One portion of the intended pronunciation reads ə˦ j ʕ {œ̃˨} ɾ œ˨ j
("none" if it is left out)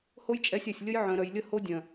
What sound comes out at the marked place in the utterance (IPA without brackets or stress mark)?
œ̃˨